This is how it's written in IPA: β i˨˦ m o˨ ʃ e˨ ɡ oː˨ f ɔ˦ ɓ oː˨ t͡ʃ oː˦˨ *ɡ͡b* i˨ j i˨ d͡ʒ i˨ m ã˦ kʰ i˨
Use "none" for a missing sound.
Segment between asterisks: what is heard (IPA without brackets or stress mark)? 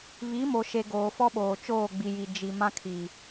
ɡ͡b